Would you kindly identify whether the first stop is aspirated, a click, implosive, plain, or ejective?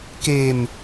plain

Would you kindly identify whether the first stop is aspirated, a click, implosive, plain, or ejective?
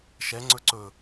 click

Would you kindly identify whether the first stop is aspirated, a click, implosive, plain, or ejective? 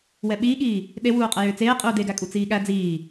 implosive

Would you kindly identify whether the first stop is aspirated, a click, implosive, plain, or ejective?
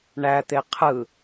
plain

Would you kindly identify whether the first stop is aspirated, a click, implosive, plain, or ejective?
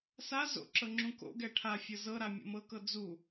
click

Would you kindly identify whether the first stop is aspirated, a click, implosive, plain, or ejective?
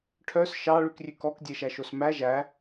aspirated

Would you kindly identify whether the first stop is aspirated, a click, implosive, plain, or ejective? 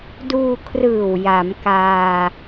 plain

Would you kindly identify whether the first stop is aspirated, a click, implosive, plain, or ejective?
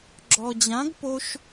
click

